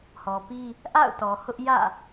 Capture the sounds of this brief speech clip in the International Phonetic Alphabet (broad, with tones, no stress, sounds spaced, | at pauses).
h ɔ˨ p i˦ | ʔ a̰˦˨ ʊ̯ t ɔ˨ h ʊ˦ ʔ j ä̰˦˨